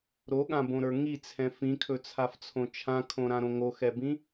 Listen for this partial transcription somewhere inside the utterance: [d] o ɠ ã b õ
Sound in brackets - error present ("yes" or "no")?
yes